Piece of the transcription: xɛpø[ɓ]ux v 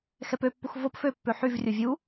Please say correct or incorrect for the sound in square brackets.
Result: incorrect: pː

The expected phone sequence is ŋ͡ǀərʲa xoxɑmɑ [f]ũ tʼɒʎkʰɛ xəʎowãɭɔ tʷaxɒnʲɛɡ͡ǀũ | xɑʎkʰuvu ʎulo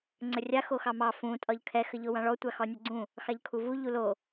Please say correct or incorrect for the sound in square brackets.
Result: correct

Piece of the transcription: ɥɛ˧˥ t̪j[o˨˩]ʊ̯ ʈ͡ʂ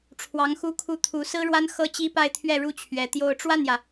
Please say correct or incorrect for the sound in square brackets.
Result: incorrect: o˥˧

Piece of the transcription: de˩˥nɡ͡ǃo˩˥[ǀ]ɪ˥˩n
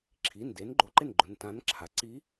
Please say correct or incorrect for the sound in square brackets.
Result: incorrect: ǃ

